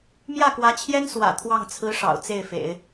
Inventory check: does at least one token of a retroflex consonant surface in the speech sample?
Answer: yes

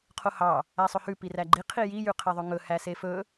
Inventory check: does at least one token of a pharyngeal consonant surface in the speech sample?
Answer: no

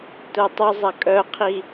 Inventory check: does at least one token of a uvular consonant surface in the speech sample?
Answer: yes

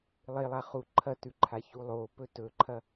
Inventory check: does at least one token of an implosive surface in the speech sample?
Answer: no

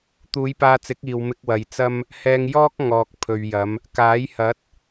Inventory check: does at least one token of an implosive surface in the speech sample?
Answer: no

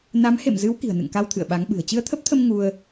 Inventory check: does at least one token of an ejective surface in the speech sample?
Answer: no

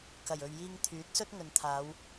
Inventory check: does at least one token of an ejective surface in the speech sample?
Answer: no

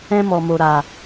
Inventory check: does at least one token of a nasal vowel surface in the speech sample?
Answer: yes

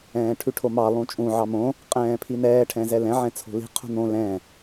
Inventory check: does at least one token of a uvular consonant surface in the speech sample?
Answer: yes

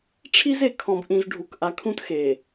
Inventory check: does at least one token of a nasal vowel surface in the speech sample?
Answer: yes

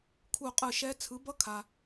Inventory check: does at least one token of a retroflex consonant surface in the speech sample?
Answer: no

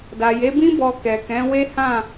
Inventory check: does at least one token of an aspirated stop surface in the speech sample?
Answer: no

